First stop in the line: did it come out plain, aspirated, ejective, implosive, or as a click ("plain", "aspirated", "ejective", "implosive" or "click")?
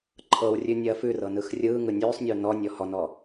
click